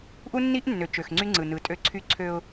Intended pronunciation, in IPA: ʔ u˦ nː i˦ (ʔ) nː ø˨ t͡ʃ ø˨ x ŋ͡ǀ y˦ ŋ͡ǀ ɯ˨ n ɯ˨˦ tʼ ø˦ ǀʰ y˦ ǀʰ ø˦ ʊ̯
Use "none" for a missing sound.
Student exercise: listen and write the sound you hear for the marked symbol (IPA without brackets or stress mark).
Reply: ʔ